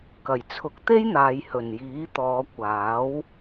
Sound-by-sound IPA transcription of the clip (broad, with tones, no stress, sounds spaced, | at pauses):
k ɐ˨˩ j t͡sʰ ʊ˨˥ k̚ t̪ e˥ j n̪ aː˨ j h ɵ˨˩ n j iː˨˥ t̪ ɔː˨˧ kʷ aː˨˥ w